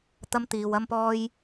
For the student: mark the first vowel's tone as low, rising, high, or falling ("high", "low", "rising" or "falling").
high